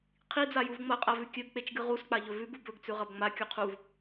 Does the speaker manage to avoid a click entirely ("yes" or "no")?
yes